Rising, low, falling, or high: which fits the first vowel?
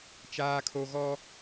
high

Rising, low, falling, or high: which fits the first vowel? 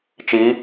rising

